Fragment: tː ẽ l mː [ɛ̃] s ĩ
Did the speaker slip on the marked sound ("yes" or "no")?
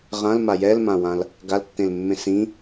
yes